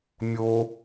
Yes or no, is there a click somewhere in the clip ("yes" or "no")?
no